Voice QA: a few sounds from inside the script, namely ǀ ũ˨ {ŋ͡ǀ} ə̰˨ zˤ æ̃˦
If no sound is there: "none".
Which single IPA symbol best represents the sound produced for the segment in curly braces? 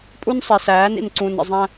n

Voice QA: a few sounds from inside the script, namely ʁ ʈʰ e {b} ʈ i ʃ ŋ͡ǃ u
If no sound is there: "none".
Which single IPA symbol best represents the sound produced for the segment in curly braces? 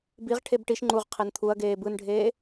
b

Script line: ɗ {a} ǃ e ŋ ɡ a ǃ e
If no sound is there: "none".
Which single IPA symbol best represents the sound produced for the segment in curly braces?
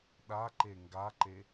a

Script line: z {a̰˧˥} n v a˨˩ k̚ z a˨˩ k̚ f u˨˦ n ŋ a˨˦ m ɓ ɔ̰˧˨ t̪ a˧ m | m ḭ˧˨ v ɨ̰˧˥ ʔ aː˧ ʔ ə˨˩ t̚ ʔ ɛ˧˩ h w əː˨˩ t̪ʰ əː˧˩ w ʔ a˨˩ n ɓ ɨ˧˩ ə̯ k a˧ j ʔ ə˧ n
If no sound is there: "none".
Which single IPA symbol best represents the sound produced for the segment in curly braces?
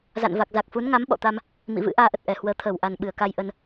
a̰˧˨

